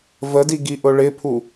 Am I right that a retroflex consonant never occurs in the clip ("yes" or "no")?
no